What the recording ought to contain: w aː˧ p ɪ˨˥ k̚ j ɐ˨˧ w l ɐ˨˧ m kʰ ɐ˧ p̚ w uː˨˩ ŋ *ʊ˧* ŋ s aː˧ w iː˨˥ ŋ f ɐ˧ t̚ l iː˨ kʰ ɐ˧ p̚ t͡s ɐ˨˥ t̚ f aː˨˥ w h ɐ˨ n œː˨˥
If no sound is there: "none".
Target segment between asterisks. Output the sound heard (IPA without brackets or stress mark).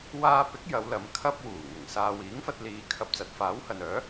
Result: ʊ˨˩